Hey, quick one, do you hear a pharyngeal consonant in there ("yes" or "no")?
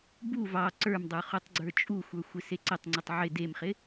yes